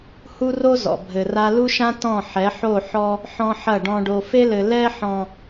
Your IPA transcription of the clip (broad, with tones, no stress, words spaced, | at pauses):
hu˦ro˦zɔ̰˨ bʱɘ˨ra˦ lu˦ʃã˦ tɔ̃˦˨ ħɛ˨˦ħo˦˨ ħɔ˦ | ħɔ̃˦ħɐ˦˨ ɖɔ̃˨ɖo˨fe˦lɘ˨ lɛ˦ħɔ̃˨